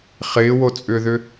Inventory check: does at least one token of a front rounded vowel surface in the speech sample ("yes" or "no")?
yes